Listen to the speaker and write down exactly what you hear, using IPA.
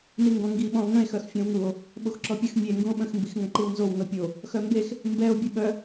n i ŋ ɡ ɔ̃ ŋ ɡ i ɓ ɔ̃ o̯ ŋ ə̃ e̯ x œ x fʲ ɔ̃ w ŋ u o̯ | ɓ o x ǁ ɔ pʲ ə x mʲ e ŋ ɡ ũ o̯ ɓ ə̃ x m b i x ŋ ə̃ ǃ i w n z o w n o pʲ o | x œ m b e x | m b ɛ o̯ bʲ e ɓ œ

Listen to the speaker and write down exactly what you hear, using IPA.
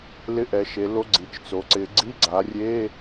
l ɪ˧˥˧ ʔ ɛ˩˧ ʃ e˩˧ l o˧˥˧ ɡ͡ǀ i˩˧ t͡ʃ t͡s o˩˧ ǀ ɪ˩˧ ɡ͡ǀ i˧˥˧ ɡ͡ǀ a˩˧ rʲ e˧˥˧

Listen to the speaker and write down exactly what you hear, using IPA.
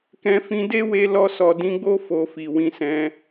k ɛ̃˧ f ĩ˧ d e˦ w e˧ l ɔ˧ s ɔ˨ d ĩ˧ ɡ͡b o˦ f o˧ f i˨ w ĩ˧ s ɛ̃˧

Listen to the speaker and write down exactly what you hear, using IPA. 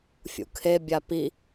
fʲ ṵ kʰ e bʲ a p i

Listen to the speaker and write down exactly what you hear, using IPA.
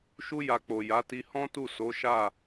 ʃ u˦ j a˧ k͡p o˨ j a˨˦ t i˧ h ɔ̃˦ t u˦˨ s o˨˦ ʃ a˦˨

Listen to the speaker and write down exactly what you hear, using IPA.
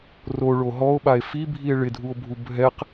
r o ɭ o ɦ ɔ o̯ ɓ a e̯ f i bʱ i e̯ ɭ ɪ dʱ u o̯ bʱ u bʱ ɛ q

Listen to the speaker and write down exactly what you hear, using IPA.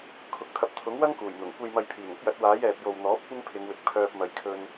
kʰ ʊ˨˥ k̚ t̪ʰ ɐ˧ p̚ t̪ʰ ʊ˨˥ ŋ w ɐ˥ ŋ k uː˨˩ j n̪ ʊ˨˩ ŋ kʷ e˨ j m ɐ˨ j pʰ iː˨˩ ŋ ʊ˥ k̚ j ɐ˨˥ t̚ w aː˨˥ j ɛː˨ p̚ j o˨ w n̪ ɔː˨˥ p̚ kʷ ɪ˥ ŋ pʰ ɪ˨˧ ŋ w ɪ˨ k̚ pʰ œː˧ p̚ m ɐ˨ j kʰ ɵ˧ n

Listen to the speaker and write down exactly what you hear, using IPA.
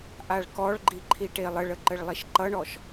ʔ a ɭ k ɔ ɭ ɡ͡ǃ i ǃʰ i ʈ e lˠ ə ɭ ə ǃ ə ɭ lˠ i ʃ ǃ ʌ ɳ ɔ ʃ

